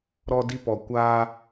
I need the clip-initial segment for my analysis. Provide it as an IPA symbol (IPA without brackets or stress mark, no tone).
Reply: ɾ